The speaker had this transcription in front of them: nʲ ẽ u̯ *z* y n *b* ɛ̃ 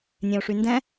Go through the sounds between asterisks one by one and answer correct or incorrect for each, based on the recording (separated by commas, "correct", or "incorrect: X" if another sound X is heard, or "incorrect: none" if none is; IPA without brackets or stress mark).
incorrect: ʂ, incorrect: d